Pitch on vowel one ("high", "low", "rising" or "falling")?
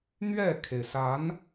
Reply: falling